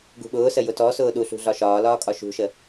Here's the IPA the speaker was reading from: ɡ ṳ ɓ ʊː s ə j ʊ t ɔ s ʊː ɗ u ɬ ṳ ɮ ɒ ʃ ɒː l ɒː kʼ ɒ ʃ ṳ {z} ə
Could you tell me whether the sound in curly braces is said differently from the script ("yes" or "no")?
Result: yes